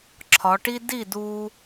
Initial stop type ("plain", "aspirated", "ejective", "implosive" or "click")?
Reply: click